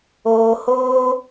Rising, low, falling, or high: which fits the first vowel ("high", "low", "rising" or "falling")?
low